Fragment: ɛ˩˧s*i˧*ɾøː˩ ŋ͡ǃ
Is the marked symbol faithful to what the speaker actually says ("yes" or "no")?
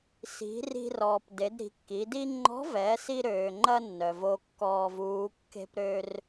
yes